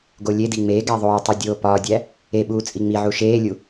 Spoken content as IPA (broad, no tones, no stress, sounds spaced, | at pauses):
ɡ o lʲ e d i ŋ͡m e ɡ æ ðˤ oː tˤ u dʲ oː p ɒː dʲ æ | e ɓ uː t͡sʼ i ŋ͡m i ʕ u ʃ eː lʲ u